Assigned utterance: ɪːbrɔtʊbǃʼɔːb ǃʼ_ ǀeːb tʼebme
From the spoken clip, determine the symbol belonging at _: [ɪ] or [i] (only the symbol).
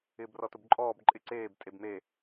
ɪ